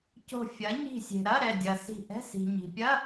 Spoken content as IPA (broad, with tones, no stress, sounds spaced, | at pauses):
c o̤˧˩ fʲ ɐ˩˥ ɲ i̤˧˩ sʲ e̤˩ ɾ ɐ˧˥˧ ɾ ɛ˧˩ dʲ ɐ˩ s i̤˧˩ ʔ ɛ̤˧˥˧ s i̤˩ ɲ i̤˩ pʲ ɐ˧˥˧